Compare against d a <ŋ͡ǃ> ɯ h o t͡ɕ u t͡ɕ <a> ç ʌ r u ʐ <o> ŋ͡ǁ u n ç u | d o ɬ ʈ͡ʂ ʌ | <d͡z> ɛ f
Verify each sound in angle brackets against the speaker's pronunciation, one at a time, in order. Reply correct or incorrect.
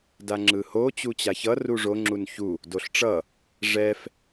incorrect: ŋ͡ǁ, correct, correct, incorrect: ʐ

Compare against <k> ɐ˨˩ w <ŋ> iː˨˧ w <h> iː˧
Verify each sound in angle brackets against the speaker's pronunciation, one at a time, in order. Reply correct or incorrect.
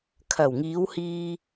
incorrect: kʰ, correct, correct

